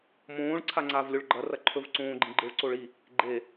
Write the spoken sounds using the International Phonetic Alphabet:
m õː ɭ ǀʰ a ŋ͡ǀ aː v lʲ o ɭ ɡ͡ǃ ɐ r ɐ ǃʰ ɵ v ǀ õː ɡ͡ǃ ĩ ɡ͡ǃ ɨ ɭ ǀ o ɭ i | ɡ͡ǃ e

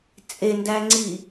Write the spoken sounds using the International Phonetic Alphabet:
t͡sʼ e n d æ ŋ͡ǀ i

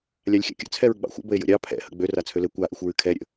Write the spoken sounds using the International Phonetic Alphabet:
lʲ a lʲ xʲ a̰ kʲ ə̰ t͡sʰ ɛ ɹ ɡ͡b ɑ̰ xʷ ə̰ b ə e̯ j ə̰ ɾʲ ɑ pʰ ɛ̰ h ə̰ ɡ͡b ø r a t͡sʰ ø l ɘ kʷ a ʔ ɨ xʷ ɹ ɨ kʰ ɛ ɾʲ ə̰

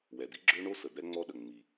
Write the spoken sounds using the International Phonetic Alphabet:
w ɛ˩ d̪ i˥ ɡ͡ǁ ø˥ ɳ o˥ s ə˩ d̪ ɛ˥ ŋ͡m ɔ˥ ɗ ə˩ ŋ͡m i˩

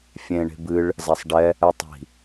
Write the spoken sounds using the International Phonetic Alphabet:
fʲ ẽ ɳ e̤ b ɨ ɭ | z a sˤ ɖ ɛ | ɛ tˤ i̤

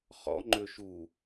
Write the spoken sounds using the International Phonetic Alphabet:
χ ɔ̰ ŋ͡ǃ ø ʃ u

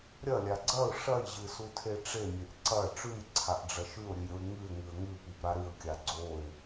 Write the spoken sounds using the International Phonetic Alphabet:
ɾʲ ɐ lʲ a ɡ͡ǀ ɐ ʊ̯ ʂ ɐ j ʑ ɨ s u tʰ e ʈ͡ʂ e mʲ e ʔ ǀ ɐ ʈ͡ʂ ʉ j ǀʰ a ʔ ɖ͡ʐ ɐ ʃ ʉ ʊ̯ ɾʲ ɨ j ɾʲ o ɪ̯ ŋ ɨ ɪ̯ ŋ ɨ ə̯ ŋ ʉ p i p ɾ a ɾ ɨ ə̯ kʲ a ɡ͡ǀ o ɪ̯

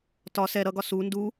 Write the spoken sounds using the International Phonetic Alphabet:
t ɒ s ɛ ɾ ʌ ɡ ɒ s u n d u

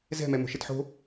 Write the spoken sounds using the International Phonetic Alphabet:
z ɛ̤ m ɛ m o̤ ʃ ɪ t ħ o̤

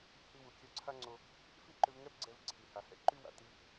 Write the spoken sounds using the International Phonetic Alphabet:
h i˧ w u˩ kʲ œ˧ ǀʰ a˥ ŋ͡ǀ o˧ | f i˥ ǃ ʏ˧ v ŋ ɛ˥ p ɡ͡ǀ ɛ˧ v ǀʰ i˩ h a˩ h ɛ̰˥ ǃ y˥ w a̰˩ t i˥

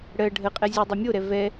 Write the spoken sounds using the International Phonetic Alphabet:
ɽ ɜ ɖʱ ə qʼ ɛ zʲ u dˤ ə mʲ o ɾ ɛ v ɛ

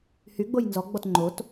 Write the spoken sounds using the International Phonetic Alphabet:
h y ɡ͡b o j n z ɔ ɡ͡b ɔ t ŋ͡ǃ o t

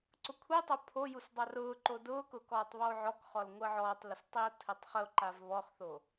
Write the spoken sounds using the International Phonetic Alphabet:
ǀ ʊ kʷʰ i tˤ o pʰ o j u s dˤ ɑ r ʊː ǃ o d ʊː k ʊ k ɔː tˤ β ɔ o̯ ʕ ɔ k χ ɔ l ŋʷ əː ʕ ɔː tˤ l ʊ s tˤ i o̯ tʰ ɘ tˤ χ ə o̯ ǃ a v β ɔ χ θ o

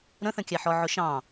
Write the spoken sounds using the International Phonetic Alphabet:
ɾ ə̃ θ ə̃ kʲ æ ħ ɔ ʕ ʊ ʃ ɑ̃

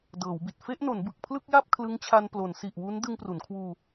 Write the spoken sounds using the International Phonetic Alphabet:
d ɤː˩˦ w b i˨˩ t̚ f e˥˩ ʔ n o˩˦ n b ɯ˨˩ k̚ pʰ l ɯ˥˩ k̚ j a˥˩ p̚ kʰ l ɯ˦˥ ŋ t͡ɕʰ a˧ n p l o˩˦ n s i˨˩ ʔ w u˦˥ n d ɯ˧ ŋ p r u˩˦ n kʰ w uː˧

